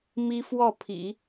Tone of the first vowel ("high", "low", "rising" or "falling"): high